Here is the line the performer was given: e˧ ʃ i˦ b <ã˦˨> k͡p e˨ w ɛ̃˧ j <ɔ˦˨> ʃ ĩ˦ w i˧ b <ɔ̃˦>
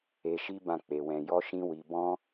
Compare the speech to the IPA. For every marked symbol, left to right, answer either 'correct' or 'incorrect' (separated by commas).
correct, incorrect, correct